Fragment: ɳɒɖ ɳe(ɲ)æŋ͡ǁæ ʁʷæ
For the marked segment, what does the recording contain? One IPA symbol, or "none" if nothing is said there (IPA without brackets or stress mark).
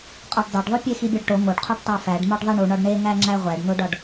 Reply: ŋ